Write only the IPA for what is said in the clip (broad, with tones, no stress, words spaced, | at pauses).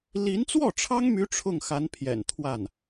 li˧˥nt͡swɔ˥˩ʈ͡ʂʰɑ˥ŋmy˧˥ ʈ͡ʂʰʊ˥˩ŋxa˧˥npʰjɛ̰˨˩n t̪ʰwa˥˩n